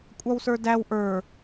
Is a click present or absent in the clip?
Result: absent